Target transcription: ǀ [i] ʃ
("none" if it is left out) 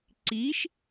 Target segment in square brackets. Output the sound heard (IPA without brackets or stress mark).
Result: i